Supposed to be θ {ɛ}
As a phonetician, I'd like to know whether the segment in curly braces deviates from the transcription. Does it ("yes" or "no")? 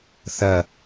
yes